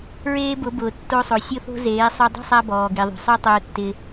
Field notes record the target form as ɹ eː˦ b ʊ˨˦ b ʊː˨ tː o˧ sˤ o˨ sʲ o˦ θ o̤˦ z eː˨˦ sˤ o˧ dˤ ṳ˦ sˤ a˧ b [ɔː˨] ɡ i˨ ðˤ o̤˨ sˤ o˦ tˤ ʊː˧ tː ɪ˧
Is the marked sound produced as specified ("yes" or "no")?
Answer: yes